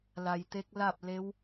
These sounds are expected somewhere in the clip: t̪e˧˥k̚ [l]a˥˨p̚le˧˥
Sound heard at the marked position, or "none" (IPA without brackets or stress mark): l